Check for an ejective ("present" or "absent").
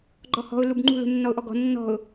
absent